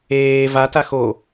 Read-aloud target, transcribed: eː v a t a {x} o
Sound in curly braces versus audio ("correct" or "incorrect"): correct